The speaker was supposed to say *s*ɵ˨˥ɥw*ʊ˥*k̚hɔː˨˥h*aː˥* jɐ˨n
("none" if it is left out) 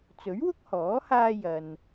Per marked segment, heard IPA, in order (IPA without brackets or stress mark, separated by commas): t͡s, ʊ˥, aː˧